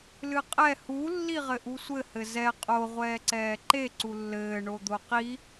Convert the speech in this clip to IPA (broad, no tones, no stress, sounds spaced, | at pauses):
l ɨ qʼ ɛ h u lː i ʁ ɘ ʔ u sʷ ɘ h ɘ z ɛ qʼ o ʁʷ ɛː ǀ ɛː ǃ e ǀ u lː ɘː ɳ o d̪ o q i